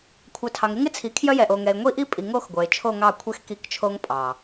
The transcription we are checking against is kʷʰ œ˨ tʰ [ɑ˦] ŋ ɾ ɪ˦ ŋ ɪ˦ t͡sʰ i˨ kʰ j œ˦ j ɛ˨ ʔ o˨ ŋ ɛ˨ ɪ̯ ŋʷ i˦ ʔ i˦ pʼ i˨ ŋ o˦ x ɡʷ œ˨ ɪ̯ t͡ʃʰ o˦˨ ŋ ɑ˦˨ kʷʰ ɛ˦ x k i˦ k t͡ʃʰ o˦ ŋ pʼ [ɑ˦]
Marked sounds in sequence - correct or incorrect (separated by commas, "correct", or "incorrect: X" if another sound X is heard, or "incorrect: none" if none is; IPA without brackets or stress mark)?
incorrect: ɑ˨, incorrect: ɑ˨